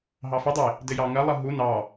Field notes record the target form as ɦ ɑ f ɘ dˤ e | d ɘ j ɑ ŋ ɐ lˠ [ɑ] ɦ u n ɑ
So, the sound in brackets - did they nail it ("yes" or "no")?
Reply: no